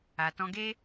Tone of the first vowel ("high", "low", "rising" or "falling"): low